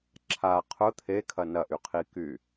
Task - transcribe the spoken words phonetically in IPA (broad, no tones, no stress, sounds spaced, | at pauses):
ǁʰ a qʰ ʊ t̪ʰ e kʰ ɐ n ɐ ʔ y qʰ i k y